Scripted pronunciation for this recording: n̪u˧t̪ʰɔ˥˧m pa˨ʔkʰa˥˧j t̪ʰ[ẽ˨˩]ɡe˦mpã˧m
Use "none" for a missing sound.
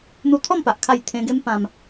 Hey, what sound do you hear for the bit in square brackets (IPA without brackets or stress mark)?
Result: ẽ˧